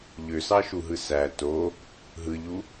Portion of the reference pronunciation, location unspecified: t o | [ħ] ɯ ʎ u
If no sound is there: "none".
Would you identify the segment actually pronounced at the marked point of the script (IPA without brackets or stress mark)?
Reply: ɦ